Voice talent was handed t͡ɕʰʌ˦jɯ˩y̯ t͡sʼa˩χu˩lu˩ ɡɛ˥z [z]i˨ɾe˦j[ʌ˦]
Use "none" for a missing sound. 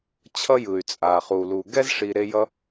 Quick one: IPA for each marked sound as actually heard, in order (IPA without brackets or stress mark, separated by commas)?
ʂ, ʌ˥